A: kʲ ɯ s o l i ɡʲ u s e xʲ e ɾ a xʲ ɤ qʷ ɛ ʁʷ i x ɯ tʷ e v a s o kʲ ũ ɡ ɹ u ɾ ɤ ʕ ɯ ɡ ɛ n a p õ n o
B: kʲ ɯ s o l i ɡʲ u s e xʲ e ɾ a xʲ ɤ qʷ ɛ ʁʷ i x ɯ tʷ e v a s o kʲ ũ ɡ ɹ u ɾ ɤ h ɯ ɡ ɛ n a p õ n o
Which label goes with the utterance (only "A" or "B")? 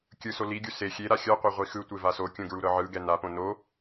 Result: A